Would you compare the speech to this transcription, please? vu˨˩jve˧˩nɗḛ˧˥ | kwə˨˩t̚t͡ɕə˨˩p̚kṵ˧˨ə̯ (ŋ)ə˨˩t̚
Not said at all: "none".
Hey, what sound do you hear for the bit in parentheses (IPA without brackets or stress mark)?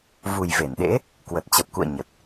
ɲ